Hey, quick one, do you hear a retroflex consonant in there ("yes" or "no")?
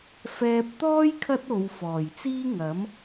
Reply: no